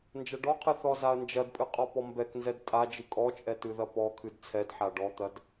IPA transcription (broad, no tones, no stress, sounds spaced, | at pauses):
n d͡ʒ ɐ ɖ ɔ qʰ ɨ θ ɔ z a ɐ̯ n d͡ʒ ɐ d pʼ ɨ qʼ ɔ p ɔ m b ɛ k n z ɛ d tʼ a d͡ʒ ɨ kʼ ɔ t͡ʃʼ ɛ t ɨ ð ɐ p ɔ kʰ ɨ d t͡sʰ ɛ d ħ a ɖ ɔ t̪ ɐ d